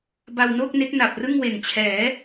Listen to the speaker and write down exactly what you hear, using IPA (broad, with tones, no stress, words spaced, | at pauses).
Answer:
ba˧wnoː˥˩k̚ne˦˥k̚ na˨˩p̚rɯ˥˩ŋ we˨˩nt͡ɕʰɛː˩˦